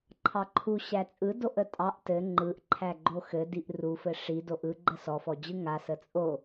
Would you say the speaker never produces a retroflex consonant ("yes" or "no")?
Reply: no